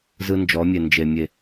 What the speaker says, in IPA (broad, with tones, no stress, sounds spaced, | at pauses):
z ɯ˦ n d͡ʒ ɔ˨˦ mʲ e˨ n d͡ʒ e˨ mʲ e˨